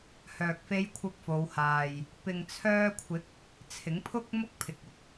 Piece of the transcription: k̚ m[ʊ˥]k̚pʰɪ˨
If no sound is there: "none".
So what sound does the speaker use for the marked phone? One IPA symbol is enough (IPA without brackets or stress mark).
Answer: ʊ˥